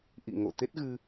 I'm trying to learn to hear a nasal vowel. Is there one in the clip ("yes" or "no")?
no